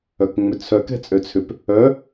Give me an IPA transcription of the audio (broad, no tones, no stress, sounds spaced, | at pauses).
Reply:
œ k ŋ͡m ʏ t͡sʰ œ k ɛ̤ t͡sʼ ø t͡sʰ ʏ p | œ